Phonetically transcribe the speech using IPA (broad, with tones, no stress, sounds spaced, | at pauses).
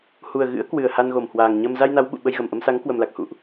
h u˨˩ ə̯ ɣ ɨ̰˧˥ ə̯ k w ɨ˨˩ ə̯ h a˧ n ɣ o˧˩ m h w aː˨˩ ŋ ɲ ə˧ m z a˧ j n a˨˦ w ɓ ṵ˧˨ ɓ ə˧ j ɣ ə˨˩ m ʔ ə˧ m s a˨˦ ŋ k w ə˨˩ m l a˨˩ k̚ h ṵ˧˨ ʔ